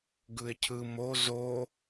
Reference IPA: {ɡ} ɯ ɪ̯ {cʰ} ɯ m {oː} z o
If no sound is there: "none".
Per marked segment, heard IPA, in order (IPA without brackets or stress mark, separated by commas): ɡ, cʰ, o